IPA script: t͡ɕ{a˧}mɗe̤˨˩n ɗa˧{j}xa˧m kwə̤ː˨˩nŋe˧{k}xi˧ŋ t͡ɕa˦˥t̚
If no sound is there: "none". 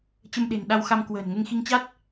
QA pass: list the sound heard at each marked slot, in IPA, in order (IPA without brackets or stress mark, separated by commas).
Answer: ə˧, w, ŋ